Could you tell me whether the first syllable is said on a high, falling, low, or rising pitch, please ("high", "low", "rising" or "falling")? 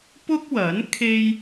high